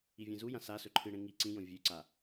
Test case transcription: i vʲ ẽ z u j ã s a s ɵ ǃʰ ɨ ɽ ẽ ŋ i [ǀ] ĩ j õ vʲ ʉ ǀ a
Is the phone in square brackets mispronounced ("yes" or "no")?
no